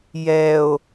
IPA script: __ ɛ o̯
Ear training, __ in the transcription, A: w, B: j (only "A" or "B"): B